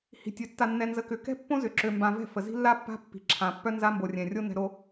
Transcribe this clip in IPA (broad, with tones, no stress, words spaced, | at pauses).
hi̤˨tʲø˨ tːa˨nːɛ˨nzə˨ kʏ˨kɛ̤˦ pːõ˦zʏ˨ǁø˨mbã˨ vɛ̤˦˨fə˨ zi̤˦lːa˦pːa̤˦ pːi̤˨ǁʰã˨pːœ˦ nza˦mbo˨rʲɛ̃˨rʲo˦ nɛ̤˨ɾo˨